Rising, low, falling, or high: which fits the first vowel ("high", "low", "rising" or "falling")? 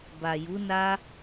low